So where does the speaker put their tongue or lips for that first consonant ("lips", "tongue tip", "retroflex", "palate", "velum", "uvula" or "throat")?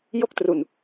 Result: palate